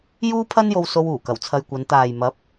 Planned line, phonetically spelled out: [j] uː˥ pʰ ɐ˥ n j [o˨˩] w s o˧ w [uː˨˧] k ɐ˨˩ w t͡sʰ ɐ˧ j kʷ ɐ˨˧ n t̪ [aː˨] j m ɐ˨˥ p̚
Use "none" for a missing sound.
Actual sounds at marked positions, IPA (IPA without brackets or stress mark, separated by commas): j, o˧, uː˨˩, aː˨